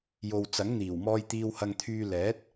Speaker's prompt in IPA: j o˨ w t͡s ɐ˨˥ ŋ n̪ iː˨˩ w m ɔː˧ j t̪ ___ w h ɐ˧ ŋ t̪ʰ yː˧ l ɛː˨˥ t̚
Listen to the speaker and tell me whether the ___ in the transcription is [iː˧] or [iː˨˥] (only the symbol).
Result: iː˧